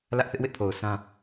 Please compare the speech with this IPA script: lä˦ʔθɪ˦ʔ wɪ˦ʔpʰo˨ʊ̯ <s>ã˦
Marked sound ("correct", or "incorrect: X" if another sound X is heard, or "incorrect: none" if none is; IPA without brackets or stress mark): correct